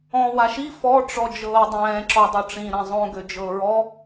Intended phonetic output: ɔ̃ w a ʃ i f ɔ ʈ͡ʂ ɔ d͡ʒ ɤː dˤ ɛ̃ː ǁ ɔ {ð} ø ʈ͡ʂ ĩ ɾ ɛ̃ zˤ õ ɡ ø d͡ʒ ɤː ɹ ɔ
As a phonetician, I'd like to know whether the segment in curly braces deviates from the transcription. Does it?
yes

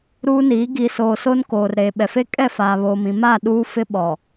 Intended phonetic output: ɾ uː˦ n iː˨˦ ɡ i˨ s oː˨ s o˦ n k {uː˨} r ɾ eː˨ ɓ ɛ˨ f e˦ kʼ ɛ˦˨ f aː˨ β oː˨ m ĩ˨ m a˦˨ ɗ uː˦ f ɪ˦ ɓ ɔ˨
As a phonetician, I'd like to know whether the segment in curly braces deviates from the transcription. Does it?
yes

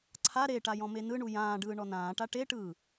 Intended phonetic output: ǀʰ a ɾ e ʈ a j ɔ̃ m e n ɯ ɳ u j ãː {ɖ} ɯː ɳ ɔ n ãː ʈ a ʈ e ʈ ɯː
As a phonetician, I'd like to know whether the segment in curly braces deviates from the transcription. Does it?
no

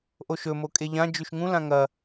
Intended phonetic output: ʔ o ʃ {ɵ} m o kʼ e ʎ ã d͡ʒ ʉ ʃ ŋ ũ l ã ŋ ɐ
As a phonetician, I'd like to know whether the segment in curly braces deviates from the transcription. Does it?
no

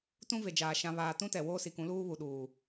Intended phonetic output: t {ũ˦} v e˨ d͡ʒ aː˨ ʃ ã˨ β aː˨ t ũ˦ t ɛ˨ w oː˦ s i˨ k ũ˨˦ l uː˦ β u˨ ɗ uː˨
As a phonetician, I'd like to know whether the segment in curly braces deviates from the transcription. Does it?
no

